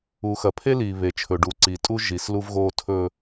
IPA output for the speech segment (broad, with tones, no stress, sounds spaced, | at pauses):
u˨ x ɐ˨ pʰ e˦ l iː˨ β e˨ t͡ʃʰ ɵ˨ ɖ u˨ ǀ iː˨ tʼ u˦ ʒ i˨ s l u˦ v ɣ oː˦ tʰ ɵ˦